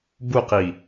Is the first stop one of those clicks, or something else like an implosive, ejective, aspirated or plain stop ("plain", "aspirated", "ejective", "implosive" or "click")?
plain